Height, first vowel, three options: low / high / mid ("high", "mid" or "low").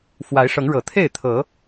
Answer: low